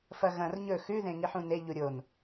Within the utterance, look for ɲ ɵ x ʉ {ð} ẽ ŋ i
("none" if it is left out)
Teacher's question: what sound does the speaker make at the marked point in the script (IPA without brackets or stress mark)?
ð